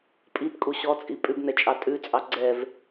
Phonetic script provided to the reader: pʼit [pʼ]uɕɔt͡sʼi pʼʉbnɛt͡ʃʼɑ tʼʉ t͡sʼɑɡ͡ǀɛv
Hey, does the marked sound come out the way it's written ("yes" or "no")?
no